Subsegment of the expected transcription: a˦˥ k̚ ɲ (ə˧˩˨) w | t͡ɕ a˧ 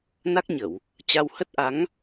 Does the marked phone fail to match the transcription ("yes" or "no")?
no